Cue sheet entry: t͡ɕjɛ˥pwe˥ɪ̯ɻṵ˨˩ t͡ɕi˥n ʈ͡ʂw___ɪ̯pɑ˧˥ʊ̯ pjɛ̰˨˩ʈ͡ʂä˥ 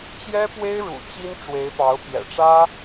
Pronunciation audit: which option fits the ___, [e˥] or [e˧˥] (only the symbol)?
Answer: e˧˥